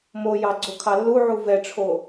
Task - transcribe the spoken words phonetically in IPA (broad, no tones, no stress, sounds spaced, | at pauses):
m o j ɑ ɡ͡ǀ o kʰ ɑ lː u ʕ u v ɛ ʈ͡ʂʰ o